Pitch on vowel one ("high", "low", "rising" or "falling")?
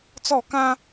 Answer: falling